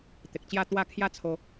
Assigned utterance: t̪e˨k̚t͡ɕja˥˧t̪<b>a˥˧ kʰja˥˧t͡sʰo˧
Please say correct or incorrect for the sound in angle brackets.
incorrect